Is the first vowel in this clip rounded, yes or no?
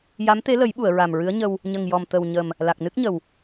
no